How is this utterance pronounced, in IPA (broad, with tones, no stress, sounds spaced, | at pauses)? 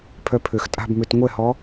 pʰ œ˧ pʰ ø˨˩ x tʼ a̤˥˧ b m ø˧ t ŋʷ ɛ˥˩ h ɔ˧˥